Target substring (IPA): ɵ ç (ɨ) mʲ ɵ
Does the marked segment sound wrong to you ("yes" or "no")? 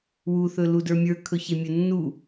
yes